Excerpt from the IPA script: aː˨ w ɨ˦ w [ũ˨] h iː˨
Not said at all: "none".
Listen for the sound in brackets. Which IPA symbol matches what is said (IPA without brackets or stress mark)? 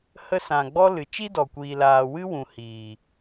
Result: ũ˨